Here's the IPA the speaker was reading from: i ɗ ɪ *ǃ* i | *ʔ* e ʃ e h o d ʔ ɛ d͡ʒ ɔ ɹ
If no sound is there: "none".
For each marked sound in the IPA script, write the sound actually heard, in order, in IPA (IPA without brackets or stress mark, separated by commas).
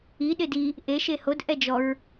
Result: d, ʔ